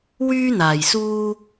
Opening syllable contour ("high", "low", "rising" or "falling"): high